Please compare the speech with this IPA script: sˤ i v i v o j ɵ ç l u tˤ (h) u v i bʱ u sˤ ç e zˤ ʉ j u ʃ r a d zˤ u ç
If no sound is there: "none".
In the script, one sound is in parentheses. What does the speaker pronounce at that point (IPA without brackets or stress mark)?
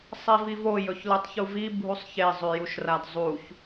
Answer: ç